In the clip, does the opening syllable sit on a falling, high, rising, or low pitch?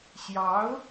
rising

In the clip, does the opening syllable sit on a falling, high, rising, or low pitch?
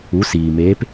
rising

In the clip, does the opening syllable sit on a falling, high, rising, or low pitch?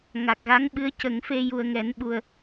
low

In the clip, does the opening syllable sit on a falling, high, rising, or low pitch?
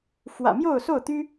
low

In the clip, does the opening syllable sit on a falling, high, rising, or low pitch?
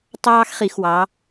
high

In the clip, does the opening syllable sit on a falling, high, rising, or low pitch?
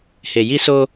low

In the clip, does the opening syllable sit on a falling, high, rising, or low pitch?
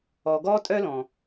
low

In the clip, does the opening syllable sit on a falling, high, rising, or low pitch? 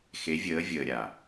rising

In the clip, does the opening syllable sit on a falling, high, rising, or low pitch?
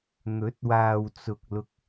rising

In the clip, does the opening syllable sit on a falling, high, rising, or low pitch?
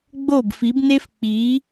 falling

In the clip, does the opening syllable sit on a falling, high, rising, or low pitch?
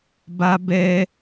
high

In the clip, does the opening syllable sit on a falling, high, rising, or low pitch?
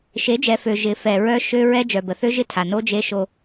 rising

